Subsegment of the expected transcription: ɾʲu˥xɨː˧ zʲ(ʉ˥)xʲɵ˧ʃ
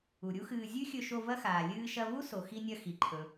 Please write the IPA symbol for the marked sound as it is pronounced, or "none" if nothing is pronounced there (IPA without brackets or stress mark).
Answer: ʉ˥